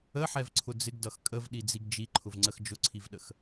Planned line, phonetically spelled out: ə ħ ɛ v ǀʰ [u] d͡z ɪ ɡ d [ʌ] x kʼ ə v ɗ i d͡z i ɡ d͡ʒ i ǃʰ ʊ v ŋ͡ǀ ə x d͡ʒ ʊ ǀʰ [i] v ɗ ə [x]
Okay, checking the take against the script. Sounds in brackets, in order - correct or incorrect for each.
incorrect, correct, correct, correct

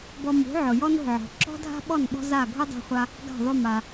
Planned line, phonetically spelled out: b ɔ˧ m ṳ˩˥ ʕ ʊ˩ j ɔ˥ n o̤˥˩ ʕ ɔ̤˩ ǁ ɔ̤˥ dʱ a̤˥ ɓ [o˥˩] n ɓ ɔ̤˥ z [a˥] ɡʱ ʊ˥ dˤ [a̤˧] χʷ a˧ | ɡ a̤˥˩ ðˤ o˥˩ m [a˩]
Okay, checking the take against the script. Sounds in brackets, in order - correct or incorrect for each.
incorrect, incorrect, correct, correct

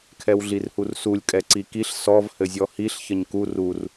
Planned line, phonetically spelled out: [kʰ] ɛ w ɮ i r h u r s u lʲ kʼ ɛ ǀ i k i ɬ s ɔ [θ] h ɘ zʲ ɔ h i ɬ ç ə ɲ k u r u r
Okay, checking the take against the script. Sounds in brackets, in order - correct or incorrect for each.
correct, incorrect

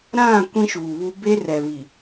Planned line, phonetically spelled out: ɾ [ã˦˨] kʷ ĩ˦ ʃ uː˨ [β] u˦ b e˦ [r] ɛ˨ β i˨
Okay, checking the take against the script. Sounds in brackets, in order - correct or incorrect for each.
correct, correct, correct

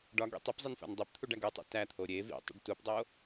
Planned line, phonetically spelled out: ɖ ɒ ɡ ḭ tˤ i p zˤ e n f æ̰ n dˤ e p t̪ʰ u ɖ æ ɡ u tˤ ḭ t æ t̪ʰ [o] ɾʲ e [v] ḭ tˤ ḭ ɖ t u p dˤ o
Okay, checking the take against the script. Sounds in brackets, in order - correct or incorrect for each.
correct, correct

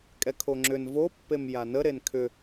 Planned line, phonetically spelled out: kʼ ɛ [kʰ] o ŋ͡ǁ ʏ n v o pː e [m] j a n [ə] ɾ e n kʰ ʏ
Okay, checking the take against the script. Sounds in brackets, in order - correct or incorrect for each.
correct, correct, correct

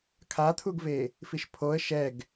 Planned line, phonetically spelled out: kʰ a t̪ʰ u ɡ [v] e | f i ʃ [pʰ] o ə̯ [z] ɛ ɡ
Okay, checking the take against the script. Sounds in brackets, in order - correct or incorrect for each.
correct, correct, incorrect

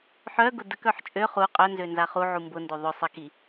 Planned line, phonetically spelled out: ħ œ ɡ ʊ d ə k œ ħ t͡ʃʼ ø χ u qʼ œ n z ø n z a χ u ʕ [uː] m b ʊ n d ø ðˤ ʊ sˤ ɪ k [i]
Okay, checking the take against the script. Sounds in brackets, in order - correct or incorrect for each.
incorrect, correct

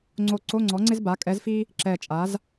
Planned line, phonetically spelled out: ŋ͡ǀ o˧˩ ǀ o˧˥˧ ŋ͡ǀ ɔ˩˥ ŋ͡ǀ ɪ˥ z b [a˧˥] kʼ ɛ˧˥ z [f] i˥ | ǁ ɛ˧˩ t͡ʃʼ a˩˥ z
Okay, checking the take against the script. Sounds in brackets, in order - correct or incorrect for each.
incorrect, correct

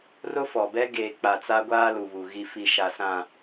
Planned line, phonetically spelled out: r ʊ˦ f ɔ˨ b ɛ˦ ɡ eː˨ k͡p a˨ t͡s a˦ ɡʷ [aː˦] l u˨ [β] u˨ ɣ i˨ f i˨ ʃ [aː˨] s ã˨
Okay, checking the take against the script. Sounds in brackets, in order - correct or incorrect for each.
correct, correct, incorrect

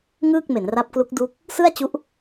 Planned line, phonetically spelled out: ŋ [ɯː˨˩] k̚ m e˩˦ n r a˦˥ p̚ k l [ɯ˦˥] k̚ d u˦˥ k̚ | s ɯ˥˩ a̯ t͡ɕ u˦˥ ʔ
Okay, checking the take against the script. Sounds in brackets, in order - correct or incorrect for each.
incorrect, incorrect

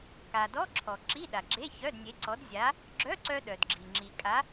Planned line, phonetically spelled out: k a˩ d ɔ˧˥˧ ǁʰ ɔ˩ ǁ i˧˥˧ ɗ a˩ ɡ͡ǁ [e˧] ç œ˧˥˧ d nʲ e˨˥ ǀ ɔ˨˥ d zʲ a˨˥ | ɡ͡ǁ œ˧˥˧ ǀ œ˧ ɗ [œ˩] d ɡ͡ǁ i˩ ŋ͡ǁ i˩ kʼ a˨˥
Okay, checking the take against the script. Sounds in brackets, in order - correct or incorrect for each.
incorrect, correct

